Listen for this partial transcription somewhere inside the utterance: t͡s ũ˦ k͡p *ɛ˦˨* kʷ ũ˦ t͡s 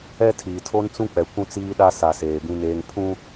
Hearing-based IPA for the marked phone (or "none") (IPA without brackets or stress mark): ɛ˨